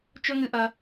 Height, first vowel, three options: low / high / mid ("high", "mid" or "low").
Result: mid